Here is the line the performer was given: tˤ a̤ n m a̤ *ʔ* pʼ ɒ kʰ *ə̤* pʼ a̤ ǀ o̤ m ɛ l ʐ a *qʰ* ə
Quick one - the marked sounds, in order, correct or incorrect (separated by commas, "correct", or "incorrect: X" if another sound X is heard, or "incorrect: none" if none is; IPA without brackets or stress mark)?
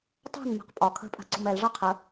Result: incorrect: q, correct, correct